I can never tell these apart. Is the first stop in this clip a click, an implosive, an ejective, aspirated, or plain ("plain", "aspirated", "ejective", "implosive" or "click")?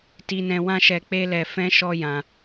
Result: plain